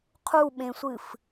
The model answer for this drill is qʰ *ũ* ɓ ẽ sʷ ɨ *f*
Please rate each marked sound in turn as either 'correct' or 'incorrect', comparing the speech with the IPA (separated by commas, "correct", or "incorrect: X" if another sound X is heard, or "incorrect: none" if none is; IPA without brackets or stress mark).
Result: incorrect: u, correct